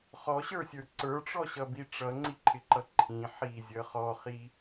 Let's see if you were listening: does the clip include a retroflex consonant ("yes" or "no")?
yes